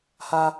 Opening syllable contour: high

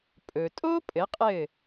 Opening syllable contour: low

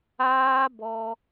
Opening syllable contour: high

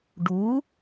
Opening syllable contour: rising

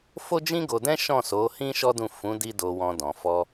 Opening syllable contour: high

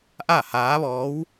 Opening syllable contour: falling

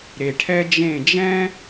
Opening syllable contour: low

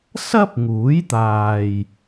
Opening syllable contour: high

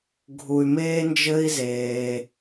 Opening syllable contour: low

